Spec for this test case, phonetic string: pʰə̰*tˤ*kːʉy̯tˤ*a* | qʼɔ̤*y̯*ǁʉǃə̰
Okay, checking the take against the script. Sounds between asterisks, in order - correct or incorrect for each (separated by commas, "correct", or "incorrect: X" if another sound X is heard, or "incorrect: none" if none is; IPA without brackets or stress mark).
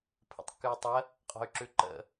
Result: correct, incorrect: ə, correct